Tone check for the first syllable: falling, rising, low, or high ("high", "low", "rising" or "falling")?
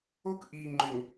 high